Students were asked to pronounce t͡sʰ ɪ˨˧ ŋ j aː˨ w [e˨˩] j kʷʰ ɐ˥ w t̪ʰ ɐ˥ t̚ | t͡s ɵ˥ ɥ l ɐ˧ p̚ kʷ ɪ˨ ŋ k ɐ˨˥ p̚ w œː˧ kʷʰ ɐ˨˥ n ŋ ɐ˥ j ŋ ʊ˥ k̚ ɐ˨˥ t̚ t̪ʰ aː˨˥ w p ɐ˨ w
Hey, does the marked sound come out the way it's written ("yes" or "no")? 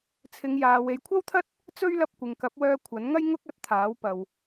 no